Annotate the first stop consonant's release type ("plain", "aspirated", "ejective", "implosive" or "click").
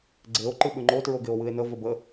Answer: click